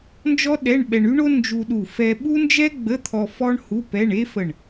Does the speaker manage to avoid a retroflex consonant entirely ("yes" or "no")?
no